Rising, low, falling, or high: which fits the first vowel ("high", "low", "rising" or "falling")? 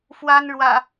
high